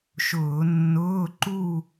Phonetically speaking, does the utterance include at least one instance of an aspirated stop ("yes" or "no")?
no